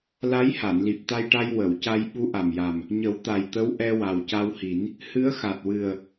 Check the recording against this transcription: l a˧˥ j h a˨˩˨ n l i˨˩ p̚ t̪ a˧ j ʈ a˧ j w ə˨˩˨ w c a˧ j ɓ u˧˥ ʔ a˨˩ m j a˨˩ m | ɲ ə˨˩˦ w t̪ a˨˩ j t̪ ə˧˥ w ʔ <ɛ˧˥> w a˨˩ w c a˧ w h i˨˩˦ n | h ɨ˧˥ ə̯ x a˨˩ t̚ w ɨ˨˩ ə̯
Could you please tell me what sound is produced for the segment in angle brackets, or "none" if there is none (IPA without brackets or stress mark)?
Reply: ɛ˧